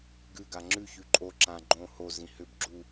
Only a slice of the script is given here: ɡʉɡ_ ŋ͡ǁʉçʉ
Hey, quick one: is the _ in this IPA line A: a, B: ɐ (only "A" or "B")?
A